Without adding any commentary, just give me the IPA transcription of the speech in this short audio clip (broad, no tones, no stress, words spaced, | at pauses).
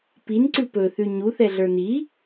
pinǀʉ pɵθʉ ɲuθɛɮə˞ ni